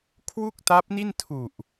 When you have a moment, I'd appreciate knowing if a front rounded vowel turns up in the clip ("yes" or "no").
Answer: no